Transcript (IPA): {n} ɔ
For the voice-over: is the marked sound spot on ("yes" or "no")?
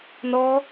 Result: yes